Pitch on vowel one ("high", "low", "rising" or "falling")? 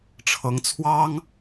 rising